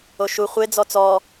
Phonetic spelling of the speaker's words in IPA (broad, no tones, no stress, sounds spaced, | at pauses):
o ʃ u χʷ e d͡z ɔ t͡s ɔ